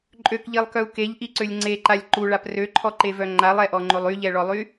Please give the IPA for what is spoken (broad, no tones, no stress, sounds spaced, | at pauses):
ǃʼ ø k ʎ i lˠ k œ u̯ k e ʎ ʔ i ǀ ø lʲ ŋ͡ǀ e ǃ a lʲ ǃ u ɭ a p r ø ǃʰ ɔ ǃ e v œ ŋ͡ǃ a lˠ ɛ ʔ ɔ ŋ͡ǃ o lˠ y ʎ ɛ ɭ ɔ lˠ y